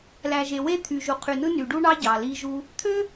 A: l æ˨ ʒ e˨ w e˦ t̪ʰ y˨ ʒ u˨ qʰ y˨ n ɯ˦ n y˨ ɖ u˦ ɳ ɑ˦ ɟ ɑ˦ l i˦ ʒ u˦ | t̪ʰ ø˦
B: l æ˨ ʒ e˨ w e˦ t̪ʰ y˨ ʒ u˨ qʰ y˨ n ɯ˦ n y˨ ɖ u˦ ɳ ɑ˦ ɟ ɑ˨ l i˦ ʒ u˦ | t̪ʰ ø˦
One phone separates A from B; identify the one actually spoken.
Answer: B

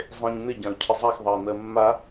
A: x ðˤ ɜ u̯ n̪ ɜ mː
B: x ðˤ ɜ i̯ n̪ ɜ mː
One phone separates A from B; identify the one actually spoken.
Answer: B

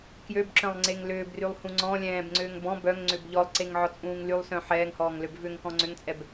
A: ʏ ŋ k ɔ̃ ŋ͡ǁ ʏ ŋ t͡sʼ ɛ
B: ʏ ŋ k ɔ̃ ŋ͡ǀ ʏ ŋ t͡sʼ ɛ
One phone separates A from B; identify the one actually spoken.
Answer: B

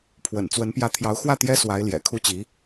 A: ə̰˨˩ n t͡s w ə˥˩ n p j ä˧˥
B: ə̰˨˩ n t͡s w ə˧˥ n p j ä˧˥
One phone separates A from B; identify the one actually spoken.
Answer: B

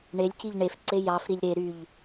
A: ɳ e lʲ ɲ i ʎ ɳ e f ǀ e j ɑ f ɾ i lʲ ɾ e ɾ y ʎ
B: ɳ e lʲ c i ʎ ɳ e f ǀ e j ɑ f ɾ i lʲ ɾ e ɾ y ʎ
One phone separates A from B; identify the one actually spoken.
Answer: B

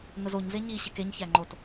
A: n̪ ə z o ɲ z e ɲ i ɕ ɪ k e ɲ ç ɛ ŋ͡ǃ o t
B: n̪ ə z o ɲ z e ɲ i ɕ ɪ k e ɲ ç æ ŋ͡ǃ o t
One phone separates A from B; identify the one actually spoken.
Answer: B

